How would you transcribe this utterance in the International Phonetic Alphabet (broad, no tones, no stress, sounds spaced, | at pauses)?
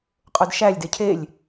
qʼ o d ʃ æ lʲ d e cʰ e lʲ